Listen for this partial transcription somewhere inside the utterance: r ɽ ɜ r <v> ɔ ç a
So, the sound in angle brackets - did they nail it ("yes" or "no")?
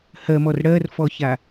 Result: no